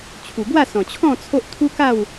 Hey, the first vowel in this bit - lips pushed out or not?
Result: yes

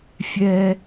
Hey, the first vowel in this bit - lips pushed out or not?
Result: no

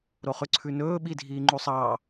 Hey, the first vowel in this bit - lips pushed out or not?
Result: yes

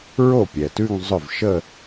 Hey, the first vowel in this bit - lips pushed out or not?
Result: yes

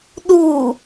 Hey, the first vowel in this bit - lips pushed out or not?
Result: yes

